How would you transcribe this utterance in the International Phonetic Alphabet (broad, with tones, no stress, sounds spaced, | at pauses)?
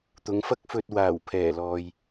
t̪ ʊ˨˧ ŋ f ɐ˥ k̚ f ɵ˧ t̚ w aː˨˩ w pʰ ɛː˨˩ l ɔː˨ j